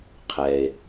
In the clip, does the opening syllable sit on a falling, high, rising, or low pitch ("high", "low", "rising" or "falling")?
low